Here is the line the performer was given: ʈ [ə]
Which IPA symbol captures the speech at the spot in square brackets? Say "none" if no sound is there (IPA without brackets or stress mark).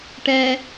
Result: ɛ